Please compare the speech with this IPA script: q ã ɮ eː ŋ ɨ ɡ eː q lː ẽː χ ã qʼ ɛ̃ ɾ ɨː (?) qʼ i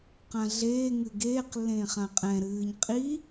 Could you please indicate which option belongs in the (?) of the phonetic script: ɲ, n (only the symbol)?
ɲ